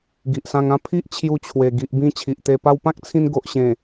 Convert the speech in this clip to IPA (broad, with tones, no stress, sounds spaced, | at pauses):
ɡ i˨ ʔ s ã˧ ŋ ã˦ pʰ i˦ ʔ t͡ɕʰ j u˧ t͡ɕʰ w e˨˩ ɡ i˨ ʔ b ĩ˧ t͡ɕʰ i˨ ʔ t̪ e˧ p a˧ w p ã˦ k̚ t͡sʰ ĩ˧ n ɡ o˨ ʔ ɕ ẽ˨˩